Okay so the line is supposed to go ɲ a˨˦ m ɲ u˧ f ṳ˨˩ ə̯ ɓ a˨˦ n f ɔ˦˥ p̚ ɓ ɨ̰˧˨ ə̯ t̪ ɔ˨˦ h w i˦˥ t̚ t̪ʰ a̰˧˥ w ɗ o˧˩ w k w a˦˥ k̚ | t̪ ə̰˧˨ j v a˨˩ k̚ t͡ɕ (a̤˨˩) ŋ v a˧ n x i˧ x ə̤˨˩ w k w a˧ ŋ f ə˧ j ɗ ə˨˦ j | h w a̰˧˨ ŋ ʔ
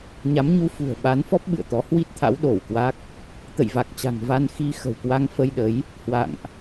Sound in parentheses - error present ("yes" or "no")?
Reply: no